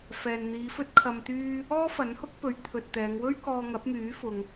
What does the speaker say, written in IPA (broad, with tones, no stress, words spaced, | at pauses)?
fɛː˨nn̪iː˨˧fɵ˥t̚ kʰɐ˧mt̪yː˥ | ɔː˥ fɐ˨˥nhʊ˥k̚pɵ˨˥ɥ t̪ʰɵ˨t̚t̪ɛː˨˧ŋ wɵ˥ɥ kɔː˧ŋɐ˨˥p̚myː˨˥fʊ˨ŋ